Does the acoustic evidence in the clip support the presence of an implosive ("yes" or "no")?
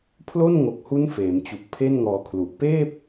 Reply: no